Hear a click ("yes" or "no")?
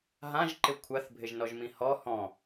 yes